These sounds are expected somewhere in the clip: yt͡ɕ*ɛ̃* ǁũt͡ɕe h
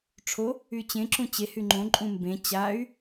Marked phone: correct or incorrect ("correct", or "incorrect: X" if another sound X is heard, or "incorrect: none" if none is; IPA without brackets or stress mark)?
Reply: incorrect: ẽ